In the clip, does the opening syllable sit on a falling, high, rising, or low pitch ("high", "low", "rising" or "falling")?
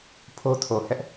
high